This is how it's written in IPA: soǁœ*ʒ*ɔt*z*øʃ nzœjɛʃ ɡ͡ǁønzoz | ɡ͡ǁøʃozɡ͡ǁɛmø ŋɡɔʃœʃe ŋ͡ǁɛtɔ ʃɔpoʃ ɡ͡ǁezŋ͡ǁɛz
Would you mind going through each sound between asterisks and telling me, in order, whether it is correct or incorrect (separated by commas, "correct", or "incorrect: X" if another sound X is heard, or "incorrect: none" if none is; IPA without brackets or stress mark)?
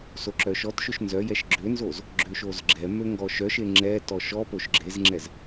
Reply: incorrect: ʃ, incorrect: ʃ